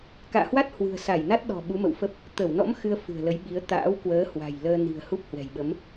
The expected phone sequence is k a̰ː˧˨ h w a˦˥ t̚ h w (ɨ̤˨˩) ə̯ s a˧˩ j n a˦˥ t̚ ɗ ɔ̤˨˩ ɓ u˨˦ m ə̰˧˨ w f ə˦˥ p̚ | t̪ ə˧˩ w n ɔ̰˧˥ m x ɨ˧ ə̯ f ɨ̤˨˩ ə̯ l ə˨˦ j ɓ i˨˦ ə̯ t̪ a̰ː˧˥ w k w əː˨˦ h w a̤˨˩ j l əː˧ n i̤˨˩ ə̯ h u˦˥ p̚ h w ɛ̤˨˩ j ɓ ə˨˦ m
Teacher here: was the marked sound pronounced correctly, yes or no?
yes